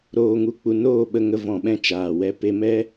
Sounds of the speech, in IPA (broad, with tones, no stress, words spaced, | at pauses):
ɾoː˧ŋu˧k͡pu˧ noː˦˨ɓə˧ŋə˧ vɔ̃˨ɓɛ̃˧ t͡ʃaː˨wɛ˧ pe˧mɛ˦